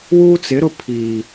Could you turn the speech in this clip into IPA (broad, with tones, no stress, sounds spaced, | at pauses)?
w uː˦ t͡s ɪ˨˦ ɾ ʊ˦ pʰ iː˨